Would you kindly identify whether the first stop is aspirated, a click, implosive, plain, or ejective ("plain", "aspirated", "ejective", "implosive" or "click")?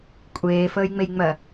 ejective